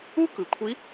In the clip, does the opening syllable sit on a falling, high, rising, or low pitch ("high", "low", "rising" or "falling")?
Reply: high